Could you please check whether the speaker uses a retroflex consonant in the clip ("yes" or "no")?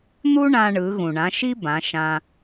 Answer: yes